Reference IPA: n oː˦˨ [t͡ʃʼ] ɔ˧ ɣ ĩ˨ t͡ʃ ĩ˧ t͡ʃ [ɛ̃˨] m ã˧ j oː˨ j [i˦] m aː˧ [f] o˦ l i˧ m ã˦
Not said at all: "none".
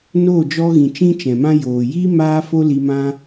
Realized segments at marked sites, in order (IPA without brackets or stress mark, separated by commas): d͡ʒ, ɛ̃˨, i˦, f